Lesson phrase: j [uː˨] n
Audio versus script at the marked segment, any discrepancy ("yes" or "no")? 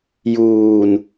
no